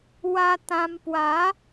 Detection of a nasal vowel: present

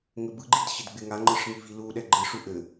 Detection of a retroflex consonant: present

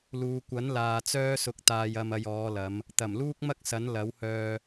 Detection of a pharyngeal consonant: absent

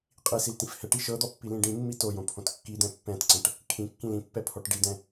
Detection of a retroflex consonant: present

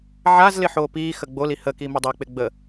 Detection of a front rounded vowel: absent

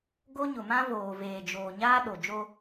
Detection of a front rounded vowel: absent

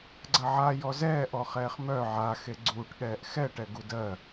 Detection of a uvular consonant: present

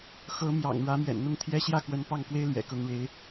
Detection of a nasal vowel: absent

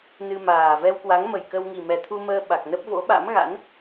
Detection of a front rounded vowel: absent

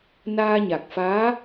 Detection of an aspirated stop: absent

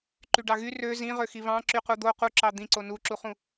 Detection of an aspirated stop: absent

